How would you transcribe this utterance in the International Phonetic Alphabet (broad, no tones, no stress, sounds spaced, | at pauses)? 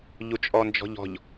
ʎ u t͡ʃʼ ɔ n d͡ʒ ɔ̤ ʎ ɔ̤ ʎ